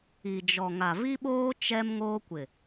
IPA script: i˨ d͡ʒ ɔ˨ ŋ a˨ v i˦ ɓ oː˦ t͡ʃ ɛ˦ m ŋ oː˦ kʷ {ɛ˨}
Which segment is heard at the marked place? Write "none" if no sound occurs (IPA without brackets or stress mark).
ɪ˨